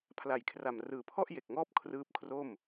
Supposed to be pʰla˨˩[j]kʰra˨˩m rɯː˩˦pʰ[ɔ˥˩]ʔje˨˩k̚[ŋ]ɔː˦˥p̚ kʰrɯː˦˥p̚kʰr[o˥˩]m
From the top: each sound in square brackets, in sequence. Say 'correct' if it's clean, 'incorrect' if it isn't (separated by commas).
correct, correct, correct, correct